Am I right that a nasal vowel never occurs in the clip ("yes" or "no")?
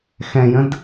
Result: no